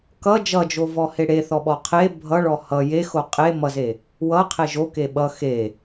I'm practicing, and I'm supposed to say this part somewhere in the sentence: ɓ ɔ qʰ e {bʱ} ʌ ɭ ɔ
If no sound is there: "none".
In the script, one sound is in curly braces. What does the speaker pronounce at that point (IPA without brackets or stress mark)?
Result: bʱ